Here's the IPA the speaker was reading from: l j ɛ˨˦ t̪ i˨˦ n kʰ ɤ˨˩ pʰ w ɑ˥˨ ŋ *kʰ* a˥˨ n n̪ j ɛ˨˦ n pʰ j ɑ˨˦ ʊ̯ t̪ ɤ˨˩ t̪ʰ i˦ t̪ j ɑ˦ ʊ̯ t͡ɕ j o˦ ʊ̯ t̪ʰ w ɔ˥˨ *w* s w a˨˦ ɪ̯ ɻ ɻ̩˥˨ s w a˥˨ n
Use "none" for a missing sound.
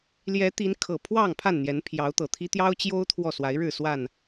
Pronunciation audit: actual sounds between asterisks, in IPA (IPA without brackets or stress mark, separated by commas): pʰ, none